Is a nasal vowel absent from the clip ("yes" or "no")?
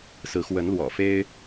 yes